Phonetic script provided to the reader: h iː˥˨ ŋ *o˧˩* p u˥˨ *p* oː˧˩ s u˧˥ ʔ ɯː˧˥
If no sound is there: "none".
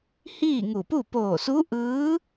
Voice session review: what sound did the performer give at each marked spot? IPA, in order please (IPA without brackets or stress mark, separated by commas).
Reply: u˧˩, p